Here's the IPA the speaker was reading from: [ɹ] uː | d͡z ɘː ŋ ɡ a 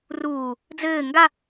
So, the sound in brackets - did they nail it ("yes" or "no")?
no